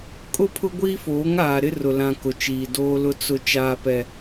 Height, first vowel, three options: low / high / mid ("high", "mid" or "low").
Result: high